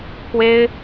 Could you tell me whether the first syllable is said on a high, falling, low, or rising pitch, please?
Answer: high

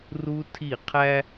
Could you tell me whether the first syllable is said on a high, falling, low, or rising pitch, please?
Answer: high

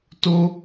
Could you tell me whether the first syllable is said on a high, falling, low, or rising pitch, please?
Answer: high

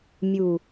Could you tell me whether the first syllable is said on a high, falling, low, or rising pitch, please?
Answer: low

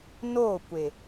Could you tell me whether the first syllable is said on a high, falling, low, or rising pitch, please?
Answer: falling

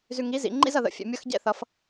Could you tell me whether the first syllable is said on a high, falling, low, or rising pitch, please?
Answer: low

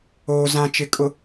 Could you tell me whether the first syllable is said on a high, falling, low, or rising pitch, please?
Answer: low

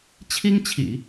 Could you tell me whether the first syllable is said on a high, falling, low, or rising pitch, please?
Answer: high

